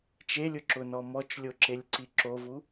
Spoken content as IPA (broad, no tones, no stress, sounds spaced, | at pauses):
t͡ʃ e lʲ ʊ ǁ ʊ n ɔ m ɔ t͡ʃ lʲ o ǁ e lʲ ǀ i ǁ o v u